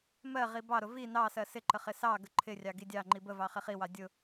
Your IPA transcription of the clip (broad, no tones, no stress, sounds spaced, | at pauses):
m ɜ ʁ i b ɑ ɾ ʊ v i n ɑ s ɜ s ɪ ǃ ə χ ɪ s ɑ ɡ ə ǃʰ ɪ rʲ ɑ ɡ i dʲ ɑ ŋ͡ǃ i b ə v ɑ χ ɪ χ i w ɑ dʲ ʊ